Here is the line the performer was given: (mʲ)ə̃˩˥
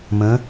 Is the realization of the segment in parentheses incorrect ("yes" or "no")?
yes